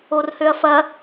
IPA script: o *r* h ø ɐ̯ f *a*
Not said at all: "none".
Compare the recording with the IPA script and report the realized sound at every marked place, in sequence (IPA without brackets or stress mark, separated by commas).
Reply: r, ɐ